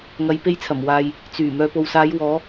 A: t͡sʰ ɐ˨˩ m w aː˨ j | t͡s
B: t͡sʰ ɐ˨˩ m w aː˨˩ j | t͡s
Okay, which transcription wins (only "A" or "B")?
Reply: A